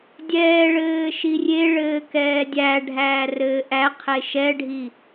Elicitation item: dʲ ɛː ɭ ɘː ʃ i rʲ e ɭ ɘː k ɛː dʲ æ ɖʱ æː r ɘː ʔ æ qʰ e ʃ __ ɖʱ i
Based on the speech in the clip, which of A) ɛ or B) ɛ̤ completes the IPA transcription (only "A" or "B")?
A